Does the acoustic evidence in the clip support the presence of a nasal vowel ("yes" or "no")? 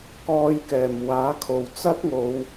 no